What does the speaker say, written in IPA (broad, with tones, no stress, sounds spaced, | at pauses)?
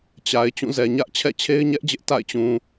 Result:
t͡ɕ a˨ ɪ̯ t͡ɕ ũ˦˨ z ɛ˨ ɲ ä˦ ʔ t͡ɕʰ ɛ̰˦˨ t͡ɕʰ e˦ ɪ̯ ɲ ɛ˦ ʔ d͡ʑ ɪ˦ ʔ t a̰˦˨ ɪ̯ t͡ɕ ũ˨